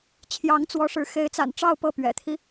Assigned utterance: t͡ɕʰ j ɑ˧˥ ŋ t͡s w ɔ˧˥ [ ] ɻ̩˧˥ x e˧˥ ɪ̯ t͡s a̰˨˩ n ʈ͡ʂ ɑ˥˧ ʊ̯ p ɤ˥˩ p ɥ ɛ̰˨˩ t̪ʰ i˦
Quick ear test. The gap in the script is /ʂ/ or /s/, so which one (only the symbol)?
ʂ